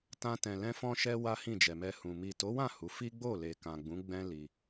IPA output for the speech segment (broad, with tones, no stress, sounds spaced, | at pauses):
t ã˧ t ɛ̃˨ l ɛ̃˧ f ɔ̃˧ ʃ ɛ˧ w a˦ h ĩ˦˨ d͡ʒ ɛ˨ m ɛ˧ h ũ˨ m i˨ t o˨˦ w ã˦˨ h u˨˦ f i˦ ɡ͡b o˦˨ l e˨ k ã˨ ɡ͡b ũ˨˦ ɡ͡b ɛ̃˦ l i˧